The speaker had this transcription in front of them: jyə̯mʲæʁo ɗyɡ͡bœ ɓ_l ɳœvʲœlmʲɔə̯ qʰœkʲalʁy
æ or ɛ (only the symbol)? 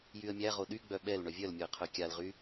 ɛ